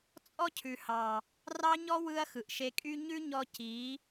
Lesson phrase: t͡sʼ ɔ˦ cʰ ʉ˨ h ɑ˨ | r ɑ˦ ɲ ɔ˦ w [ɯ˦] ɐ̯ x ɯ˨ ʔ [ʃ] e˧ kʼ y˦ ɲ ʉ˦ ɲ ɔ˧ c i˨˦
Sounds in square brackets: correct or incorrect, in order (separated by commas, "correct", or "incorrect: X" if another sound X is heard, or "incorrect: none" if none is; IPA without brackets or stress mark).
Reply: correct, correct